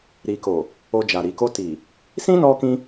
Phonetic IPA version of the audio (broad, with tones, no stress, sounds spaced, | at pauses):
ɾ i˨ k o˨ | o˧ d͡ʒ a˨ ɾ i˨ k o˧ t i˨ | s ĩ˦ n ɔ˧ k ĩ˧